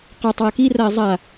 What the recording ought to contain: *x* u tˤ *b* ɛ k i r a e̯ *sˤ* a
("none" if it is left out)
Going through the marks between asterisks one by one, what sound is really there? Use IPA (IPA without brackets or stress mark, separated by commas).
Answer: q, w, zˤ